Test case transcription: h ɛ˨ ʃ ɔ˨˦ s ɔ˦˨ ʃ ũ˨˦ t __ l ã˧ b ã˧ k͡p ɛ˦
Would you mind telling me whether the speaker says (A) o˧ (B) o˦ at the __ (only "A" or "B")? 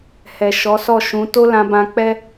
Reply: B